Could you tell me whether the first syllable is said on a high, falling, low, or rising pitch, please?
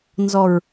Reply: low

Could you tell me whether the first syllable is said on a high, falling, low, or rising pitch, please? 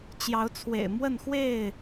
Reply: rising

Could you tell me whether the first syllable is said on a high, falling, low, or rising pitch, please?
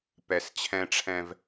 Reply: low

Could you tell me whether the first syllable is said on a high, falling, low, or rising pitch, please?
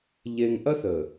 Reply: low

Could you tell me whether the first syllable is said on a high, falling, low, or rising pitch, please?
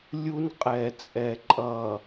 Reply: high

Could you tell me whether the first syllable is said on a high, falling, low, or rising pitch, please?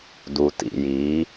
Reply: low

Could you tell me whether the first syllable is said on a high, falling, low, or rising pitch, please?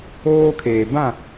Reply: high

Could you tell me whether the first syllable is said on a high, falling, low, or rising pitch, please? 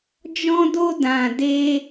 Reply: high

